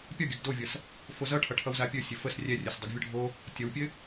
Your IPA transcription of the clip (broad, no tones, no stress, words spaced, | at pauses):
pʲɒɡʲɵɡ dovʲʌs | fozʌʈʰʌ ʈʰʌwzapʲɵ sʲɘfəs rʲɛrʲɵs dˤɘɡvʲʌɖʱo | tʲʌwpʲɘ